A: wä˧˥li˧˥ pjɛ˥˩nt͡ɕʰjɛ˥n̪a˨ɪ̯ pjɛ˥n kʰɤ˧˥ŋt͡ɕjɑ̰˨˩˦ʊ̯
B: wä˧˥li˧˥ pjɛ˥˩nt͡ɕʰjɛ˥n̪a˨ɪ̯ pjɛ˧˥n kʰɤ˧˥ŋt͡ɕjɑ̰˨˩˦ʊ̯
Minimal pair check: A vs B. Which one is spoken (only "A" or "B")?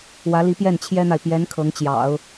B